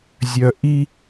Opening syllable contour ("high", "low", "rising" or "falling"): low